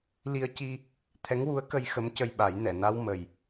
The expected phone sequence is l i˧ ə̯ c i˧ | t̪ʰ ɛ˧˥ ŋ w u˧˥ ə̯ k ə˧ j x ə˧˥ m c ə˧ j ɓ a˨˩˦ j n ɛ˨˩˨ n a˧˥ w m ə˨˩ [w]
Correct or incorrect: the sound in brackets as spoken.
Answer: incorrect: j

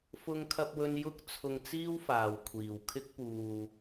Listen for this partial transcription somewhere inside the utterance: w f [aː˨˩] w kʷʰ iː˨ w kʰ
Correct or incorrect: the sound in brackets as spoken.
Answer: incorrect: aː˨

